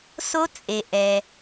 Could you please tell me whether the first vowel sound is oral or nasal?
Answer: oral